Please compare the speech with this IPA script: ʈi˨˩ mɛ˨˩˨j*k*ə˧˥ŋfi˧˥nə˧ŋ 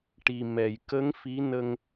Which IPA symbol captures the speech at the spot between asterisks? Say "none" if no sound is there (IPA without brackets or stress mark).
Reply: k